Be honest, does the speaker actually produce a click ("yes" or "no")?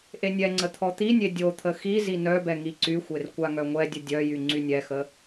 yes